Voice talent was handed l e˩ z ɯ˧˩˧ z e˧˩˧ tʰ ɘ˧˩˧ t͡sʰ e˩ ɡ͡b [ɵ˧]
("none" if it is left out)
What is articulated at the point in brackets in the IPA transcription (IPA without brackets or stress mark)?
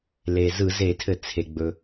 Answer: ɵ˩